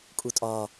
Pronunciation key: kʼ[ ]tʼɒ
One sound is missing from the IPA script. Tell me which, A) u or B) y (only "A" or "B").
A